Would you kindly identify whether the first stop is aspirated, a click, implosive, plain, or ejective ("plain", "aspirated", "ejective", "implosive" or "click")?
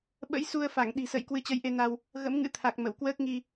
implosive